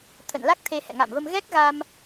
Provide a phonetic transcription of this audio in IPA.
t̪ʰ ə̰˧˨ n l a˦˥ k̚ t̪ʰ e˧ h ɛ̰˧˨ ŋ a̰˧˨ m v ə˧ m ɣ ɛ˦˥ k̚ ɣ a˧ m

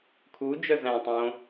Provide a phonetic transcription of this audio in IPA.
kʰ u d͡ʒ œ z æ̃ tˤ õ

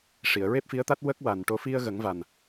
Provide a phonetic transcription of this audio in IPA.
ʂ i˨˩˨ ə̯ ɹ e˦˥ p̚ f i˧˥ ə̯ t̪ a˦˥ t̚ w ə˦˥ k̚ w a˨˩ n ʈ o˧ f i˧ ə̯ ɣ ə˨˩˦ ŋ v a˨˩ n

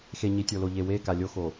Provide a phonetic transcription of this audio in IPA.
x e˨ ɲ i˨ tʲ o˨ l o˨ ʎ e˨ w e˦˨ k a˨ lʲ o˦ x o˨

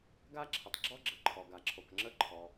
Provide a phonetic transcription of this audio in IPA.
ɡ a˥ ǁʰ ə˩ tˤ ɡ͡ǁ ɔ˥ ɡ͡ǁ ə˩ ǃʰ ɔ˩ ɡ a˩ ǁʰ o˩ k ŋ͡ǁ ə˥ ǃʰ ɔ˩

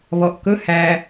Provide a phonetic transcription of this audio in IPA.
β ɔ ʔ k ɵ h æ

